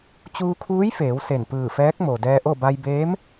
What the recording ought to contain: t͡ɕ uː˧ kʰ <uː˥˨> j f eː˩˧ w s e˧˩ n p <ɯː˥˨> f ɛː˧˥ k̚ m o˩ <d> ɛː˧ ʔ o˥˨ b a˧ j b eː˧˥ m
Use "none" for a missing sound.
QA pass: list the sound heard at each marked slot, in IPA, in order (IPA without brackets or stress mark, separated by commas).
uː˧˥, ɯː˧˩, d